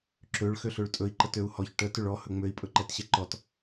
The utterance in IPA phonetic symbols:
ǁ ø ɭ x ø ɬ ø ɭ tʼ ɵ i̯ ǃ ə t ø u̯ h ɔ ç ʈ ə t ø ɭ ɔ h ɵ ŋ͡m ø i̯ pʼ ɵ ǃ ɛ t ɕ ɛ ǃ ɔ t

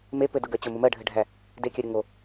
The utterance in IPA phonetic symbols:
m e p ɘ d ʊ ɡ ɜ t͡ɕ ʊ m ʊ m ɜ ɖʱ ɘ ɖʱ æ | d e kʲ ɜ ɾʲ ʊ ŋ o

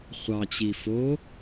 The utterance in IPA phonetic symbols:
χʷ ɑ t͡ɕ i f o

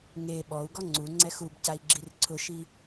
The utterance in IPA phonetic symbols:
ŋ e ɓ ɔ u̯ ɡ ɔ ŋ͡ǀ u ŋ͡ǀ ɛ x u b c a i̯ ɡ͡ǁ i r ǀʰ ʊ ʃ i

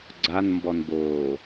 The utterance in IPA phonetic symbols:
ɡ͡ǀ a n m b ɔ n b oː

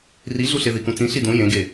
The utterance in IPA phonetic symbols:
r i ɮ u ɬ e ð i k ũ t͡s ĩ ɬ i d ũ j ẽ ɡ e

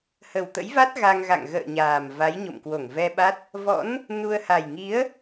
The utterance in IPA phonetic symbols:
h ə˨˩ w t̪ ə̰˧˥ j v a˦˥ t̚ ɣ a˧ ŋ ɣ a̰˧˨ ŋ ɣ ə̰ː˧˨ ɲ aː˨˩ m v a˨˦ j ɲ o̰˧˨ m k w o˧˩ ŋ v ɛ˧ ɓ a˦˥ t̚ | v ɔ̰˧˥ n | n u˧ ə̯ h a˨˩ j ŋ i˨˦ ə̯

